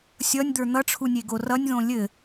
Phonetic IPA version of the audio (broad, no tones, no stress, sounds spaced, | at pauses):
sʲ ʌ nʲ d̪ ə˞ n̪ ʌ ʈ͡ʂʰ u nʲ e ɡ o r ʌ nʲ ð õ lʲ ɘ